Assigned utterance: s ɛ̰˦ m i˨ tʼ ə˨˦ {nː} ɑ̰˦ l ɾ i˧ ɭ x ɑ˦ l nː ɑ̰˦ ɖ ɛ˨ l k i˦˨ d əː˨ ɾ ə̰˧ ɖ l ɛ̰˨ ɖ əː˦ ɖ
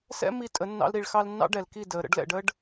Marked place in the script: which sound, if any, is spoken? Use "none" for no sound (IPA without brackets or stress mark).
nː